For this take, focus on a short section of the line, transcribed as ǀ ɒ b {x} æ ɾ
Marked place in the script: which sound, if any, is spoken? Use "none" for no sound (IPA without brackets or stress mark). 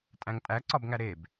ŋ